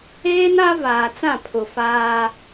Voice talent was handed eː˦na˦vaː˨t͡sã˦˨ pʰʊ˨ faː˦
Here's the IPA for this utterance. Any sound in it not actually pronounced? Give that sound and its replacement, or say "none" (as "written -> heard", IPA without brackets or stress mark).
none